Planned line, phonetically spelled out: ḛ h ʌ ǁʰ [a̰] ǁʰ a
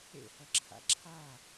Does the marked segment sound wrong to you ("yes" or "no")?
no